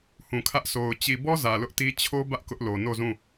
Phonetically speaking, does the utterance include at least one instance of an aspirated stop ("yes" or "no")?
yes